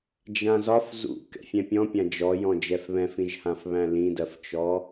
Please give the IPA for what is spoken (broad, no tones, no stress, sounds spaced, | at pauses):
d͡ʒ ã z ɒ f z ṵ k ɛ̰ fʲ ɛ̃ pʲ ɔ̃ pʲ ã d͡ʒ ɔ j ɔ̃ d͡ʒ ɛ f β ɛ̃ f ĩ ʒ h ã f β æ̃ l ĩ d ɜ f t͡ʃ ɔ